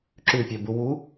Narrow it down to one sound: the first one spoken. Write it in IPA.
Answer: ǁ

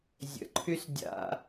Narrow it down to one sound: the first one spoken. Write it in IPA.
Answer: zʲ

